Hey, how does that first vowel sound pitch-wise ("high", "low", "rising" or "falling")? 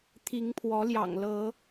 rising